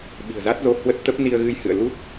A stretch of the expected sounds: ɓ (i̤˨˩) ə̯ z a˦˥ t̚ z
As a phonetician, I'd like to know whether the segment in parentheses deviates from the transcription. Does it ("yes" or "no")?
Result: no